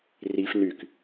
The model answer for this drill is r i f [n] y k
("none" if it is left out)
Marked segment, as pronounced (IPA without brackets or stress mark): n